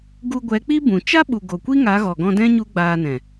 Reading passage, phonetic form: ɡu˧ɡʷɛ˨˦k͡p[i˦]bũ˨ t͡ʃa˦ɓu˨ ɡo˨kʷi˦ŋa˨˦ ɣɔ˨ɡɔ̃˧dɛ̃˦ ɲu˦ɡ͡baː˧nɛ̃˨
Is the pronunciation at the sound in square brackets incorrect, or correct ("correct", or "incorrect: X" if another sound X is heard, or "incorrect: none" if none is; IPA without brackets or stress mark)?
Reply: correct